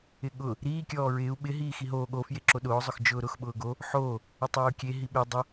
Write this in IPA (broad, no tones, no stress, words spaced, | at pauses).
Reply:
ɪɠʊ | ɾiː kʲɔːɹɪːu̯ ɓɪ ɦiːxiɦoː ɠo fjeǁoɗʊː zˤʊxd͡ʒʊːɾʊx ɓʊːɡo | ħoː | ɪtˤiːu̯kʲe ɦiɓe dˤʊ